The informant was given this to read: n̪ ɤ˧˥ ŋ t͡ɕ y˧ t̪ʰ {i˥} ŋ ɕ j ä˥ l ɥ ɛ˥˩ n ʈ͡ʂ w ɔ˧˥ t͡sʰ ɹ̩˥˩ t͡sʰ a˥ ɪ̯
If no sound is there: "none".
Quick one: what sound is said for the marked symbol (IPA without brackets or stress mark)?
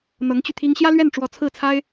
i˥